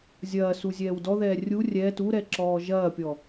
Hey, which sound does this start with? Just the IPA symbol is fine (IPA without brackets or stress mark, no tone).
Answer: zʲ